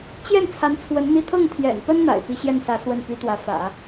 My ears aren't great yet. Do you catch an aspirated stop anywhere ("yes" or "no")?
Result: yes